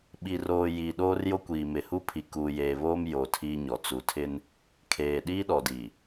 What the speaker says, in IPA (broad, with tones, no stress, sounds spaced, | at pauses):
ɓ i˨ r oː˨ j iː˨ ɗ oː˦ r j o˦ kʷ iː˨ m ɪ˨ h u˦ pʰ i˨ k uː˨ j eː˨ β oː˦ m j o˨ tʰ iː˦ ɲ ɔ˨ t͡s u˨ tʰ ɪ˦ n | kʰ eː˨ ɗ iː˦ ɗ ɔ˨ d iː˨